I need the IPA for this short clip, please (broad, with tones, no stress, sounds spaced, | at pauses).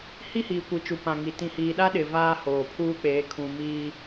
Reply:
h i˦ h iː˨ kʷ i˨ t͡ʃ u˨ p ã˨ ŋ i˨ t ĩ˨ h iː˨ ɗ a˦ ɗ ɪ˨ v aː˦ h oː˨ pʰ uː˦ k͡p eː˨˦ kʰ ũ˨ m iː˦